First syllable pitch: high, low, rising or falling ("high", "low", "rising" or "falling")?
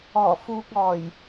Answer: low